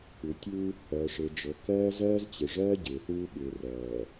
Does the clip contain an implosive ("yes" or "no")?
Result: yes